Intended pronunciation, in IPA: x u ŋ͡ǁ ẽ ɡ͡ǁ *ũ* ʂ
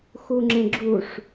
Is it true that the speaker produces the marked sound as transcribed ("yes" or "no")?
no